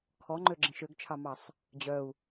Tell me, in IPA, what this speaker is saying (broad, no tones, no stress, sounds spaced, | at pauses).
kʰ ɔ ŋ͡ǃ ø ɡ͡ǁ ẽ ʃ ø ɡ t͡ʃʰ ɑ m ɑ sˤ | d͡ʑ œ u̯